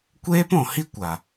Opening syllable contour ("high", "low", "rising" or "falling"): high